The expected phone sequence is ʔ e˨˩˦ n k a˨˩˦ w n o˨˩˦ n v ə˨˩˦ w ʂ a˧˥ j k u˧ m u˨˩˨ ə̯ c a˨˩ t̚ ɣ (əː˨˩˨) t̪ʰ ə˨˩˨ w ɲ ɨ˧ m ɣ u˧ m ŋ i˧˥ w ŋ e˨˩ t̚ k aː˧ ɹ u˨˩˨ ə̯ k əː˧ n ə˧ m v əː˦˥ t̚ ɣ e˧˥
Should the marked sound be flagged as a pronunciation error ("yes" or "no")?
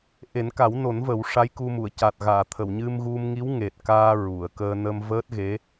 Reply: yes